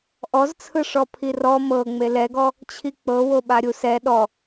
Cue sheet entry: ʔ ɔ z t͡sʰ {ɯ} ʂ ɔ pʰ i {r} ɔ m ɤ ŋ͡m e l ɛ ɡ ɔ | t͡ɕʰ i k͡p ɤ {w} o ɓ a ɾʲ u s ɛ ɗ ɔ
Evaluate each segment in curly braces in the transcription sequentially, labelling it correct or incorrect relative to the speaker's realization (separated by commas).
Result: correct, correct, correct